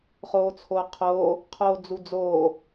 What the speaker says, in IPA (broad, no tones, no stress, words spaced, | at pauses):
χoːt͡sʰoːqʰoː | qʰoːd͡zud͡zoː